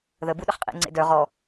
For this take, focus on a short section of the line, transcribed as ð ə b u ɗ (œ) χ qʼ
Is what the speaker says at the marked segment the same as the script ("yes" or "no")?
no